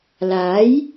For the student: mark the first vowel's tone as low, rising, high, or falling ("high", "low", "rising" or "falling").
rising